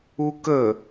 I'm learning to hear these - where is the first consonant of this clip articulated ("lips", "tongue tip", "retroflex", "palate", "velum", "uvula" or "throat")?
velum